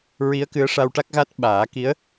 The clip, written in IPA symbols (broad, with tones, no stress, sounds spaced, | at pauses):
ɹ i˧˥ ə̯ k ɨ˧˥ ə̯ ʂ a˧ w ʈ a˦˥ k̚ ɣ a˦˥ t̚ ɓ aː˨˩˦ k i˧˥ ə̯